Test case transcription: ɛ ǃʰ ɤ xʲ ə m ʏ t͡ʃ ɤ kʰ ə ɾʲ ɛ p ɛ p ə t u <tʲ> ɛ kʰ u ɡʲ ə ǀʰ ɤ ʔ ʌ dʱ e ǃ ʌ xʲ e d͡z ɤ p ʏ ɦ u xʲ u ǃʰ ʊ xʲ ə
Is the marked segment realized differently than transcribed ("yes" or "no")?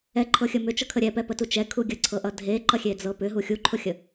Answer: yes